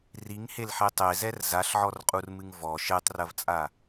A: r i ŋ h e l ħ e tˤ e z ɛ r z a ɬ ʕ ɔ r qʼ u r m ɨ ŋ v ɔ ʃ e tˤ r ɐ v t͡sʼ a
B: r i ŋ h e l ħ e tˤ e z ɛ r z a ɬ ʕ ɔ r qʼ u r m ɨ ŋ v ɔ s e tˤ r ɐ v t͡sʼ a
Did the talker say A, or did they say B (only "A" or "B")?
A